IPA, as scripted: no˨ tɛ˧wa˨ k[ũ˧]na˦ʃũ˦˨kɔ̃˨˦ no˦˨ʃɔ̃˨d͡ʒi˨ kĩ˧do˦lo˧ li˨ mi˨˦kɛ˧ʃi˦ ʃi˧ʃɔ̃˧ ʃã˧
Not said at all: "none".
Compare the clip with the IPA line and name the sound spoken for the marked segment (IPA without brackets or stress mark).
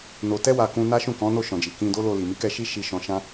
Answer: ũ˧